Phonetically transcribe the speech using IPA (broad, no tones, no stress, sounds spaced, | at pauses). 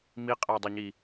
m i qʼ æ dˤ e ɲ i